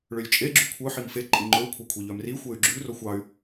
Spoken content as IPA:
ɭ ø lʲ t͡ʃʼ e ɡ͡ǁ ʉ kʷʰ œ ħ i m f e ǃʼ i ŋ͡ǃ ɵ u̯ kʷʰ ɑ kʷʰ e ʎ œ m r i xʷ e y̯ ɡ͡ǁ ʉ r o xʷ ɑ y̯

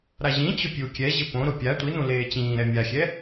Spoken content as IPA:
ɾ a ʑ ĩ t͡ɕ ʊ pʲ u kʲ ɛ ʑ ɪ p õ ɾ ʊ pʲ a tʷ i n ũ l eː t͡ɕ ĩː ɾ ɛ mʲ a xʲ ɛ

